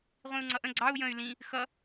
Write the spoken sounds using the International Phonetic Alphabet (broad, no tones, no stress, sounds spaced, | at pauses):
ʁʷ ĩ u̯ ŋ͡ǀ ʌ ʔ ə̃ ɡ͡ǀ ɑ u̯ j ə̃ y̯ l ĩ | x ʌ